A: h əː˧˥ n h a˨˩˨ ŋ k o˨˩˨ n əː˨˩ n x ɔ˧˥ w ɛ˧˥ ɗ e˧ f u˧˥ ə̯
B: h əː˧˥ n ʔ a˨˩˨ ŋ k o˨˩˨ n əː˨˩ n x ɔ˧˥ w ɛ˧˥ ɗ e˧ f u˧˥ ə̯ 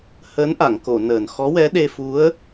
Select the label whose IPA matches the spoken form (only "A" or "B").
B